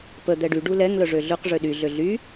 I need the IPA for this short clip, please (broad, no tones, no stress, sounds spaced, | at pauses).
p ə d̪ ɛ ɖ y ɖ u l ɛ ŋ l œ ʐ ø ɮ ø q ʐ ø ɗ y ɮ ø ɮ y